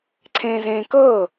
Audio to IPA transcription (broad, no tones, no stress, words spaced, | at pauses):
ǀʰẽːzẽːkɤː